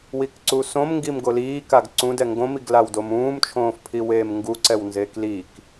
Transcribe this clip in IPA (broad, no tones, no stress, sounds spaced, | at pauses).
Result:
w i k ǀ u s õ m ŋ ɡ i m ɡ o l iː k a ɡ ǀ ũ d ɛ ŋ ɡ õ m i ɡ l a w d o m ũː m t͡ʃʰ õː f pʰ i w eː m ŋ ɡ u ǀ ɛ w n z eː k l i k